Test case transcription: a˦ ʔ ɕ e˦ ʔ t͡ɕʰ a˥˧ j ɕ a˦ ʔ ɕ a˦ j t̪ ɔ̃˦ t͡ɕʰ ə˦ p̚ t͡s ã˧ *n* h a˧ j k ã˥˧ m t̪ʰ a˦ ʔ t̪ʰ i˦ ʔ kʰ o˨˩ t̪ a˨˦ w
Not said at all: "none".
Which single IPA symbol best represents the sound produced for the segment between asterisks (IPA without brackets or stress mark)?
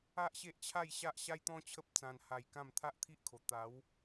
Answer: n